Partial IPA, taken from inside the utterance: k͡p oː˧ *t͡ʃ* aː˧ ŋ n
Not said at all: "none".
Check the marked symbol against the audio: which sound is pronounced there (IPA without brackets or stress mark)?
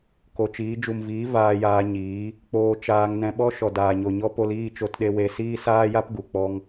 t͡ʃ